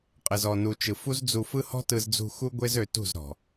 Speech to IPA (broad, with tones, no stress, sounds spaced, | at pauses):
qʼ ɘ˨ z ɔ˨ n u˨ t͡ʃ ɯ˨ f u˦ z d͡z u˧ f ɯ˦ h ɔ̤˦ t ɯ˧ z d͡z ṳ˧ x u˦ ɡʷ e˦ z ø˧ t ṳ˦˨ z ɾ ɔ̤˨